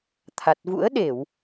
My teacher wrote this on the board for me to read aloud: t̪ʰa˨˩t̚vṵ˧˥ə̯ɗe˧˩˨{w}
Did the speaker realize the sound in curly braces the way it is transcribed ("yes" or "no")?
yes